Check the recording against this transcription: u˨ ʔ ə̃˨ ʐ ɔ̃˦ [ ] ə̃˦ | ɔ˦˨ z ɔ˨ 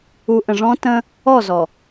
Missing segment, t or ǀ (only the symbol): t